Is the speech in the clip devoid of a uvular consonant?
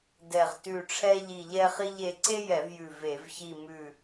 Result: no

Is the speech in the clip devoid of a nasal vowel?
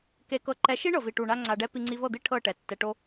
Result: yes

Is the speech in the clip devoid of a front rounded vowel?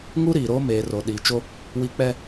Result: yes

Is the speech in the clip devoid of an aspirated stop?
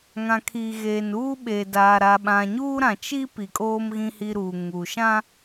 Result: no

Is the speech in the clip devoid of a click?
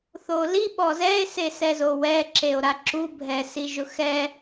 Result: no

